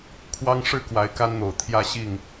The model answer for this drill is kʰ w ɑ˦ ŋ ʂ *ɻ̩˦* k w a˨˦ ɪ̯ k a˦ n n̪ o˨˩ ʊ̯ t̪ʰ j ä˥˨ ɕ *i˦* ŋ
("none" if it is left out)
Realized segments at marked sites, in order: ɻ̩˥˨, i˥˨

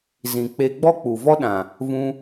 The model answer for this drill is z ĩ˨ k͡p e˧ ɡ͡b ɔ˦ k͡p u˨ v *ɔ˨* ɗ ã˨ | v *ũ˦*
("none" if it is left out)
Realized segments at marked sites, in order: ɔ˦, ũ˧

